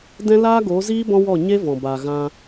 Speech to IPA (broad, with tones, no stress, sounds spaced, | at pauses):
d ɛ̃˦ l aː˦ ɡ o˨˦ z iː˦ b ɔ̃˦ w ɔ˦˨ ɲ e˦ v ɔ̃˨ b a˨ ɣ ã˧